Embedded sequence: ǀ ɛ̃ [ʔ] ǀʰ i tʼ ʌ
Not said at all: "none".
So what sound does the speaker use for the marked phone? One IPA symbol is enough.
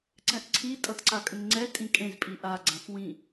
ʔ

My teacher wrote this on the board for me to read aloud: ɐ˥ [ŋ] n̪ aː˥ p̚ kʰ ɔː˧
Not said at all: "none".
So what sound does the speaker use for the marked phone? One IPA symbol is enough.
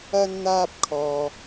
n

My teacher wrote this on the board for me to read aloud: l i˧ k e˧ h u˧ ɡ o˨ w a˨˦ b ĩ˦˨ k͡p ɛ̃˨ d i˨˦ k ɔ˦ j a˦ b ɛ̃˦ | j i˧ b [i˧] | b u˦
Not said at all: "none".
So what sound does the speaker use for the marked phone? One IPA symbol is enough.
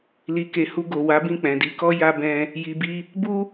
i˦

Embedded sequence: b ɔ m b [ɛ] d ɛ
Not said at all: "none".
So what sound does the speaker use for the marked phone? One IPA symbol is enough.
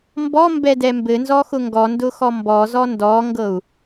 ɛ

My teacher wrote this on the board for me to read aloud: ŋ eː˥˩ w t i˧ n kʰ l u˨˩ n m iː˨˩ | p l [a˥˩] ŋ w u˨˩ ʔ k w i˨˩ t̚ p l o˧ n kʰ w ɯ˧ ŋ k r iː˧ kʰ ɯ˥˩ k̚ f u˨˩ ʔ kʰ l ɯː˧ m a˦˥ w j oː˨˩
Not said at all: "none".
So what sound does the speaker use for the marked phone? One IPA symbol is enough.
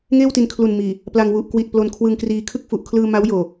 a˧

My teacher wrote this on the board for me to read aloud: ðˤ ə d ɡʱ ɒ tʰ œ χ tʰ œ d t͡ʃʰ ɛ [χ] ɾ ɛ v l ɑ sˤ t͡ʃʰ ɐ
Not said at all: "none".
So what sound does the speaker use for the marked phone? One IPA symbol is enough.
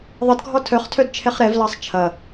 χ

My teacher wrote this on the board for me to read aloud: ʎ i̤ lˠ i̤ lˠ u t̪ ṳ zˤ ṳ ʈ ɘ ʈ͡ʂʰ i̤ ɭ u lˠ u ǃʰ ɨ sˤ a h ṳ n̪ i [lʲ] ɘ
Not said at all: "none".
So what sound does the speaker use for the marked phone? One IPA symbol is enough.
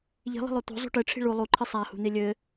lʲ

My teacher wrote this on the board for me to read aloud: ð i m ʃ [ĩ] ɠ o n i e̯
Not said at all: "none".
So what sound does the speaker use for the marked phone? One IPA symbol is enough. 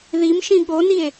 ĩ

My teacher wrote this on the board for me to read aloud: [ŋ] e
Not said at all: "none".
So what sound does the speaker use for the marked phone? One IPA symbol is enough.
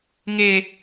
ŋ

